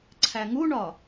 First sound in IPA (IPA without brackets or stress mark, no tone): ǀʰ